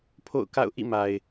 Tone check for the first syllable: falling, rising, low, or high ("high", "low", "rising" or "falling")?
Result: falling